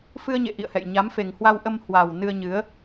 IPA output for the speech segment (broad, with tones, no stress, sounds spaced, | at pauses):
f ɨ˧ ə̯ ɲ ḛ˧˨ ʔ ḭ˧˨ ə̯ h ɛ̰˧˨ j ɲ a˨˦ m f e˨˩ ŋ h w a˧ w ʔ ə˧ m h w aː˨˩ w n ɨ˧ ə̯ ɲ ɨ˨˦ ə̯